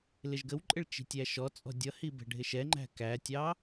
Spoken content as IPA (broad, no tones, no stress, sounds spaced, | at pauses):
l ɪ ʒ ɡ ə w ǃʼ ɪ ɭ t͡ʃ i̤ tʲ æ ʃ ɔ t͡sʼ ɔ̤ dʲ ʌ h i b ɛ̤ ɖʱ ɪ ʃ ɛ ŋ͡ǃ æ̤ k æ tʲ ɑ